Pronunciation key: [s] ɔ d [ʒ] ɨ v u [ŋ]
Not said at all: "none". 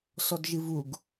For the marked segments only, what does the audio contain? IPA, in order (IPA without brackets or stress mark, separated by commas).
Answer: s, ʒ, ɡ